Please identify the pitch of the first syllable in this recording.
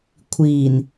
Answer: low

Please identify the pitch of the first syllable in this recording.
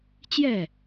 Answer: falling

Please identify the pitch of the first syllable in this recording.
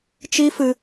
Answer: high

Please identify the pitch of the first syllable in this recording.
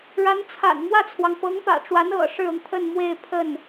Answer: rising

